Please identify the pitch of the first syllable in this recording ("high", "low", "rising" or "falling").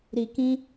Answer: low